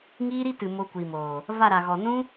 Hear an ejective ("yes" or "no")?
no